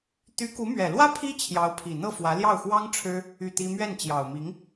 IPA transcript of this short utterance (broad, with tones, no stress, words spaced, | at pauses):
t̪y˧˥ku˧˥mɥɛ˨˩lwä˥ pʰi˥ t͡ɕʰjɑ˧˥ʊ̯pʰi˨˩n̪ɤ˥˩ fwä˧˥ ljɑ˥˩ʊ̯xwɑ˥ŋ ʈ͡ʂʰɻ̩˥ | y˥˩t̪i˥ mɥɛ˥˩nt͡ɕjɑ˨˩ʊ̯mi˧˥ŋ